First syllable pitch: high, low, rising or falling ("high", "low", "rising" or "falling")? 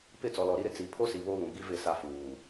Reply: falling